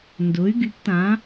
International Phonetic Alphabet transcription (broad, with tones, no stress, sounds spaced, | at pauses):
n d ʊ˨˥ y̯ ɡ y˨˥ p t ã˨˥